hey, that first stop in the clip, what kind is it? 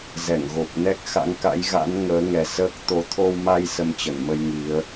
plain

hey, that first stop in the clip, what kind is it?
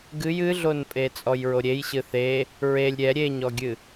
plain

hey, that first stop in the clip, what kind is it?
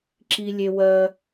click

